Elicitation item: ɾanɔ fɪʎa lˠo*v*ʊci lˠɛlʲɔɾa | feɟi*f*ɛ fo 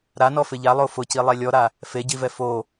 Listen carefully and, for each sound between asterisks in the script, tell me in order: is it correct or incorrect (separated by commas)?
incorrect, incorrect